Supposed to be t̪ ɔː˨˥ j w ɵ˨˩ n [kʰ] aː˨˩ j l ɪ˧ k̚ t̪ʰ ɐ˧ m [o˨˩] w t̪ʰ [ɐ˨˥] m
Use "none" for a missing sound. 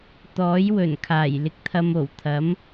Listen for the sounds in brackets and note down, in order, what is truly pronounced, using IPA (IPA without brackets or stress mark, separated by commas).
kʰ, o˨˩, ɐ˨˥